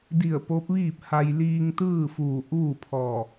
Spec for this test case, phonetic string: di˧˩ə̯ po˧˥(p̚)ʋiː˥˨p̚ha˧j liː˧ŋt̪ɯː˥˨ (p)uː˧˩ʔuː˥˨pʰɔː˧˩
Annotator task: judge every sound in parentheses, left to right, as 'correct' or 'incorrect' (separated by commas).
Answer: correct, incorrect